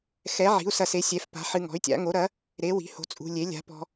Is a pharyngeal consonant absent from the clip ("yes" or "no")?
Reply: no